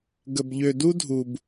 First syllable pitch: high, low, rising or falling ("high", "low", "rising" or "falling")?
low